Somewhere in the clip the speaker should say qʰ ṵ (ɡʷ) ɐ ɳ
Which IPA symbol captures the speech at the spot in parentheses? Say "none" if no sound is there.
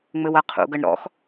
ɡ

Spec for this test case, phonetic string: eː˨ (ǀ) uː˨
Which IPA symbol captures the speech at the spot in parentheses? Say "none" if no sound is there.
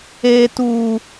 t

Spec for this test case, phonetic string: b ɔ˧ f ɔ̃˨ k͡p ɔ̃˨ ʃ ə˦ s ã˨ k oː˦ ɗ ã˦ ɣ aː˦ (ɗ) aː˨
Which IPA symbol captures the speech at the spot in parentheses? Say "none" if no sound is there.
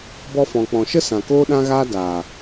d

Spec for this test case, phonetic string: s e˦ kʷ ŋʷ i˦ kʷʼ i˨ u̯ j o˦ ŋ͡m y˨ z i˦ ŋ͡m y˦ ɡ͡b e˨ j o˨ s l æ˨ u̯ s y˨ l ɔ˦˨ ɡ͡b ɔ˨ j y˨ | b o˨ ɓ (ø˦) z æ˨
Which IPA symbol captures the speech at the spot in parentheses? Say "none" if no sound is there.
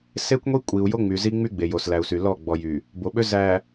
ø˦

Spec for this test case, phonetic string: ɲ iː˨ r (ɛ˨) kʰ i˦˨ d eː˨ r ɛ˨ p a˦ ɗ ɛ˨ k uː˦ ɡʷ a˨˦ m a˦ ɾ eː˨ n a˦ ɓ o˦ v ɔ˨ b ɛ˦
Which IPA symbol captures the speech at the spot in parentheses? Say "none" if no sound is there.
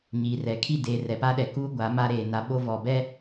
ɛ˨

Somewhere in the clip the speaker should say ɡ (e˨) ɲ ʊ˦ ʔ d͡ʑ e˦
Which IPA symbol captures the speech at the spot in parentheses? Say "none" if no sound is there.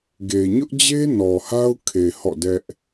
e˨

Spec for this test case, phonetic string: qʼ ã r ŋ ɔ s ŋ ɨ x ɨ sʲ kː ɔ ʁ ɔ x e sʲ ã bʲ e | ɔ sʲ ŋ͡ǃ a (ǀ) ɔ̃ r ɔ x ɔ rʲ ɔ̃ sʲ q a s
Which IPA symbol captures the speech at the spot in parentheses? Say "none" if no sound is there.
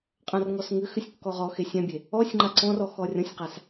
ǀ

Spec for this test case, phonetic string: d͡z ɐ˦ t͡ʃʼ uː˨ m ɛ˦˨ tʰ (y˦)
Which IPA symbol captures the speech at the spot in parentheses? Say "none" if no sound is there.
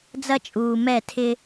ɪ˦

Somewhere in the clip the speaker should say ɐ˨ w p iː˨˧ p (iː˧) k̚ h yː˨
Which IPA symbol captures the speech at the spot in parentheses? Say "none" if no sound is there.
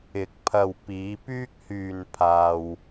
yː˧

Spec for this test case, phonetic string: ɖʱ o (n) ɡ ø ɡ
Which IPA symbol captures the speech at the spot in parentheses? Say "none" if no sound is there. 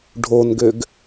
n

